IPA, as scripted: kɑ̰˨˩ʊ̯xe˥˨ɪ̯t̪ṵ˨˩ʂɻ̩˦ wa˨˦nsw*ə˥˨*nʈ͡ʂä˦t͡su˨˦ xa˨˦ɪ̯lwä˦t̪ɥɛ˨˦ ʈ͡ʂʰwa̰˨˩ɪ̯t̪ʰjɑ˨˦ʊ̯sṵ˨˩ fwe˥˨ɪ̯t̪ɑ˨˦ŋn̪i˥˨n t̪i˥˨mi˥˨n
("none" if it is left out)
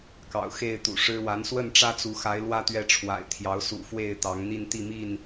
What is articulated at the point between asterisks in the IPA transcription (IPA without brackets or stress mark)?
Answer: ə˥˨